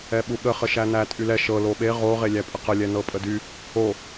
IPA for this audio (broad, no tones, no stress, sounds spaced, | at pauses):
ɛ ɓ u ɠ ə χ ə ʃ æ n æ tʼ y l ɛ ʃ ɤ l o ɓ e ʁ o ʁ e lʲ æ pʼ ə q ə lʲ ɛ n ɤ pʼ ə d y | o